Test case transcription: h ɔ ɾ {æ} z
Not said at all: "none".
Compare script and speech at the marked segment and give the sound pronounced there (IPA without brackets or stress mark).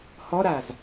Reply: a